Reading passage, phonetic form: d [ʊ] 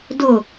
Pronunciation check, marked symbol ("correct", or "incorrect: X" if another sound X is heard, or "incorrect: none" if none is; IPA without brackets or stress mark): correct